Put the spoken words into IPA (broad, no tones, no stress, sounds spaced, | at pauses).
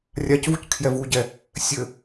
rʲ a c v u c kʰ j ɛ v u ɟ ɛ | sʲ ɘ